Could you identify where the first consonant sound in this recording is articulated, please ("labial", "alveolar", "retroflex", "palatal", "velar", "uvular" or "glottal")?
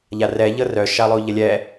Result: palatal